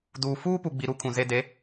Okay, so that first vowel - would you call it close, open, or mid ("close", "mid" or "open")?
close